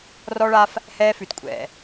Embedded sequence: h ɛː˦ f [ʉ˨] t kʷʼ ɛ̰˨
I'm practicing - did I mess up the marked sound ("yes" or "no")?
no